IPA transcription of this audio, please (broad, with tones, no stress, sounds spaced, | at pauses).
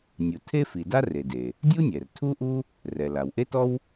nʲ u˩ tʰ e˥ f i˩ d a˥ r e˩ d e˩ | dʲ u˥ nʲ ɛ˩ r tʰ u˥ ʔ u˥ | r ɛ˩ l a˩ w ʔ e˥ t ɔ˥ w